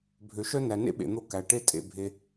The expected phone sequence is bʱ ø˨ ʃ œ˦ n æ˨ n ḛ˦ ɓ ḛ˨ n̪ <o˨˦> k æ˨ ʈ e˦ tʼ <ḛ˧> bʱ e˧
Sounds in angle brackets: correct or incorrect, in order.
incorrect, correct

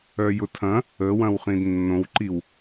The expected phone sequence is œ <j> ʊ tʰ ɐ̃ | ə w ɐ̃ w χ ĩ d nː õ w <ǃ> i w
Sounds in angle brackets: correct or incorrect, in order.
correct, correct

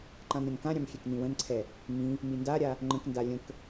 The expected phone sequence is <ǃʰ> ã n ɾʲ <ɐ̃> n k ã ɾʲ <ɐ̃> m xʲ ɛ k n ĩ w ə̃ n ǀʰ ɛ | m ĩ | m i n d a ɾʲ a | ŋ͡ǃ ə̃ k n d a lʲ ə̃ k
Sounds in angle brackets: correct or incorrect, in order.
incorrect, correct, incorrect

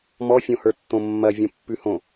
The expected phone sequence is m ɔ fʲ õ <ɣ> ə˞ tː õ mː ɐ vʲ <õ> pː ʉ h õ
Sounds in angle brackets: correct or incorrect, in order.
incorrect, correct

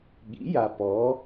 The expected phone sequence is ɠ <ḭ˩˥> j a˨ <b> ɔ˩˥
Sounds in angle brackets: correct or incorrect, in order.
correct, incorrect

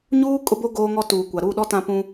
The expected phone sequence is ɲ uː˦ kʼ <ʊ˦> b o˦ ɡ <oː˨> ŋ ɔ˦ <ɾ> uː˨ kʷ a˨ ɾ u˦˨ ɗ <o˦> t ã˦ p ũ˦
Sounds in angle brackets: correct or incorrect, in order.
correct, incorrect, incorrect, incorrect

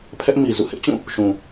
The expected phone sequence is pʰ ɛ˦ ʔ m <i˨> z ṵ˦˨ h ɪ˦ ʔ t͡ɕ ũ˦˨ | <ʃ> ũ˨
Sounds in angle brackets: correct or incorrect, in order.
correct, correct

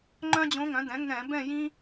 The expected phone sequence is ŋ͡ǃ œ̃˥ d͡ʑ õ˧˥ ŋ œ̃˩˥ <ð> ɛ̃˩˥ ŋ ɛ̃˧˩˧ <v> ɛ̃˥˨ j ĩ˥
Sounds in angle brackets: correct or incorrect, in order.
incorrect, incorrect

